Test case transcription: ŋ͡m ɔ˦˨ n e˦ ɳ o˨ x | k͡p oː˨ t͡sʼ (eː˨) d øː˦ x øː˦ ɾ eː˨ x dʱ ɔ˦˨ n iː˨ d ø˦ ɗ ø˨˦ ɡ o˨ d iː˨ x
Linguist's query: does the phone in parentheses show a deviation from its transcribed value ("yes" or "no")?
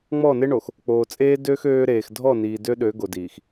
yes